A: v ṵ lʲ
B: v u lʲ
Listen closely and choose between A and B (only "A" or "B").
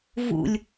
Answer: A